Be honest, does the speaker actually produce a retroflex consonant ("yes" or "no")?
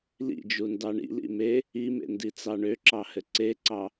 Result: yes